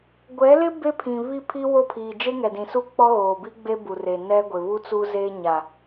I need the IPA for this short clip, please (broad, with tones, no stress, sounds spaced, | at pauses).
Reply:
ɡʷ ɛ˨˦ l ɪ˦ b e˦ pʰ ĩ˨ β i˦˨ pʰ i˦ w o˦˨ pʰ iː˨ d͡ʒ e˦ ŋ ɛ˨ d ĩ˨ s u˦ k͡p ɔ˦ ɣ oː˨ b i˦ ɡ͡b e˦ b u˨ r e˨ n ɛ˦ ɡʷ ɪ˨ β u˦ t͡s u˦ z eː˦ ɲ a˨